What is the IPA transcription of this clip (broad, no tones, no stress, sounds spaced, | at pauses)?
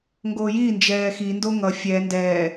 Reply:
ŋ ɡ oː j iː n d͡ʒ ɛː x i n d o ŋ ʌ fʲ ɛ n d ɛː